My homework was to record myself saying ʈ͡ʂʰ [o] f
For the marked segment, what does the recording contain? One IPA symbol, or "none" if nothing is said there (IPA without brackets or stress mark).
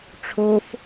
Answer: o